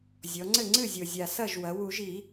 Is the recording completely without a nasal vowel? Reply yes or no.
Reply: yes